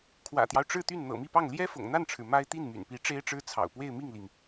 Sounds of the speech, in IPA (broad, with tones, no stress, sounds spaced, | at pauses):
kʰ w ä̰˨˩ t̪ j ɑ˦ ʊ̯ ʈ͡ʂ ɻ̩˥˧ t̪ y˥˩ n n̪ ɤ̰˨˩ m i˥˧ p ɑ˥˩ ŋ l j ɛ˥ f ʊ̰˨˩ ŋ n̪ a˥˩ n ʈ͡ʂʰ ɻ̩˩ m a˥ ɪ̯ t̪ i˥˩ n m y̰˨˩ n p i˧˥ ʈ͡ʂ e˥ ɪ̯ ʈ͡ʂ ɻ̩˥ t͡sʰ ɑ̰˨˩ ʊ̯ p w e˥˧ ɪ̯ m i˥˩ ŋ l i˩ ŋ